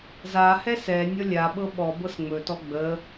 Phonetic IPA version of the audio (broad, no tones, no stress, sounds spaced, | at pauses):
z a h ɛ s ɛ nʲ ɔ lʲ a ɓ ɤ ɓ ɔ b ɤ s ŋ͡m ɵ t ɔ ɡ͡b ə